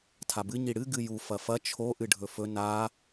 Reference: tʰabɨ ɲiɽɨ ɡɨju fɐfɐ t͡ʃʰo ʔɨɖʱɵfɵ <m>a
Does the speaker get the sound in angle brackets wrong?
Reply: yes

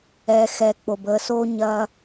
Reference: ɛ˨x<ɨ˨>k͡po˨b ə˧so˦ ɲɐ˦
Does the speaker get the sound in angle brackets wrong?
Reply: yes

